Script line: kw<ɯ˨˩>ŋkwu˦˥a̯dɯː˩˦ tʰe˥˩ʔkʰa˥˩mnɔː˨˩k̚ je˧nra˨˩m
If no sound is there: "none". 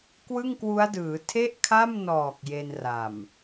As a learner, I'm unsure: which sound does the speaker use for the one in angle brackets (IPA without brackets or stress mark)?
ɯ˥˩